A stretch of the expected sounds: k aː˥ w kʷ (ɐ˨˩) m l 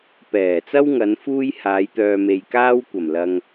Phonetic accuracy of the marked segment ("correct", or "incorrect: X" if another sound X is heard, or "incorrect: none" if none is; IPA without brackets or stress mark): correct